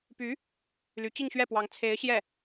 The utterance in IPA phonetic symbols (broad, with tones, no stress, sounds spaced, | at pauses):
p y˧˥ | l y˧˥ t͡ɕ i˥˧ ŋ ɕ ɥ ɛ˥˩ p w ɑ˧˥ ŋ t͡sʰ e˧˥ ɪ̯ ɕ j ɛ˥˩